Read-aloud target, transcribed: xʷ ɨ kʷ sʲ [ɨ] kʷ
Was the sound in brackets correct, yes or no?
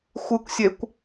no